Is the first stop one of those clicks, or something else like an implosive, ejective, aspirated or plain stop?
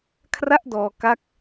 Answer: aspirated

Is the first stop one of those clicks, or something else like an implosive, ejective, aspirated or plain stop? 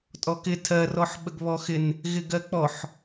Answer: ejective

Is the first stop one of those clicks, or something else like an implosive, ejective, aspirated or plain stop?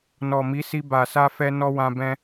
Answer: plain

